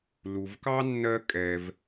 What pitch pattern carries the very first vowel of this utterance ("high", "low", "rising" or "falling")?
low